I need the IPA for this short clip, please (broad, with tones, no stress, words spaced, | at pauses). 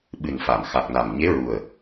ɓɨ˨˩nfa˨˩˨m xa˨˩k̚na˨˩m ɲe˧˥ɹu˨˩ə̯